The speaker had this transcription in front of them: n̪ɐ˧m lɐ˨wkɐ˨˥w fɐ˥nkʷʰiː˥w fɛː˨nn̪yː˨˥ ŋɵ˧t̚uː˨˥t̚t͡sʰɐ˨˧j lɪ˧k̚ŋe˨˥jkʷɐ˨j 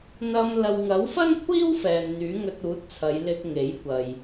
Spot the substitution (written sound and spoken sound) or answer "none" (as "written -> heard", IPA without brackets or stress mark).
k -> ŋ